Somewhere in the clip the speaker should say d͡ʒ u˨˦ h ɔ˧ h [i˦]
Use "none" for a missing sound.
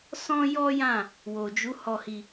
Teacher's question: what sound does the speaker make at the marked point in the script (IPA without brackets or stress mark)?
i˧